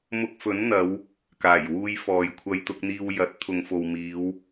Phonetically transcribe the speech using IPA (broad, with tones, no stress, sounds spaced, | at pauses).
m ʊ˧ k̚ f ɵ˨˥ n n̪ ɐ˨˧ w | k aː˨˩ j w uː˧ j f ɔː˨ j kʷʰ ɐ˧ j t̪ ʊ˧ k̚ n̪ iː˧ w j ɐ˨˥ t̚ t̪ʰ ʊ˨ ŋ f o˨ w m iː˨˧ w